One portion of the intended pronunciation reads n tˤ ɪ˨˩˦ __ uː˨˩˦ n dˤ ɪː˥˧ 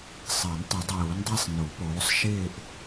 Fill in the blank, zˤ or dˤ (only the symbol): dˤ